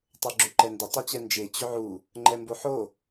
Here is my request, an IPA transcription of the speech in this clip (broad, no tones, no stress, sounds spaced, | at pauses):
tˤ ə˞ ɡ͡ǁ ʏ ǃ ɛ n d ʏ tˤ u t͡ɕ ɛ n d͡ʒ e t͡ɕ ʏ ʕ u | ŋ͡ǃ ɛ m b o ħ o